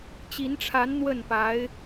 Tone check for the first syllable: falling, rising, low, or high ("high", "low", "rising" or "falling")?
rising